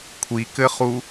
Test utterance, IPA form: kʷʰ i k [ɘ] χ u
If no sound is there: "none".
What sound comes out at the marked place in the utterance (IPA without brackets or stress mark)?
ɘ